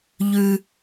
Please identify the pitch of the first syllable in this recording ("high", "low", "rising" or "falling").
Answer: high